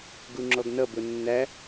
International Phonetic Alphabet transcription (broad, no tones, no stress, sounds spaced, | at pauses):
ɡ u ŋ͡ǁ ɔ ɡ n ʌ b ʊ nː æ